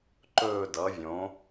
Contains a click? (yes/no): yes